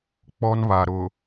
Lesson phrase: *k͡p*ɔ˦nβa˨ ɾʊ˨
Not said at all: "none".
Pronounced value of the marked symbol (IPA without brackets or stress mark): k͡p